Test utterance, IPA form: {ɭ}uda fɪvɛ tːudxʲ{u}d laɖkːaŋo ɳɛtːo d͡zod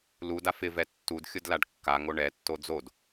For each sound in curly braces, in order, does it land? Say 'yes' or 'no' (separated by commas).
no, no